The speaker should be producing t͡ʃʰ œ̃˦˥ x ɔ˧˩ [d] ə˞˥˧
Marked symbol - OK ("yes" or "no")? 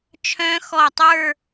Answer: no